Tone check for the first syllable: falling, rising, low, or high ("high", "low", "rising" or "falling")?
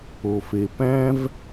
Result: low